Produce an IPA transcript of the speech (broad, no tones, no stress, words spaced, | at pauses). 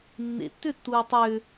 nːḛtːʏtːuː tˤʏ